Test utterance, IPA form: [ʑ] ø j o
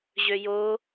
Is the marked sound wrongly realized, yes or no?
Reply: no